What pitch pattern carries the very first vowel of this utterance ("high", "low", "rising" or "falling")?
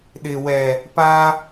low